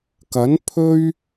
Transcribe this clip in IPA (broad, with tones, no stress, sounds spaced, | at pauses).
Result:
k ɐ˨˥ n pʰ ɵ˥ ɥ